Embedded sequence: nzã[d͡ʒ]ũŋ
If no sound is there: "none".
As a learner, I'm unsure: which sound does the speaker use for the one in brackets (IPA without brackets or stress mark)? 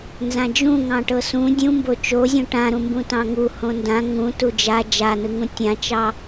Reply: d͡ʒ